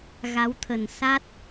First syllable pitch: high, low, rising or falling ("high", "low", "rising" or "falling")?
rising